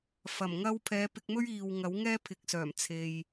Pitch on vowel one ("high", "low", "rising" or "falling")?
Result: low